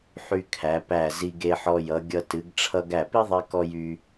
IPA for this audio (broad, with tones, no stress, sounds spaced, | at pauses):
ħ y˧ kʰ æ˩˧ p æ˧˩ z i˧ ɡ e˧ ħ ɔ˧ j ʌ˩˧ ɡʲ ʌ˧ t ɨ˩˧ ɡ ʈ͡ʂʰ ʌ˧ ɡ æ˧˩ p i˥ ðˤ e˧ k ɔ˧ j y˧